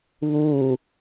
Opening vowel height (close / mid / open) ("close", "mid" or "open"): close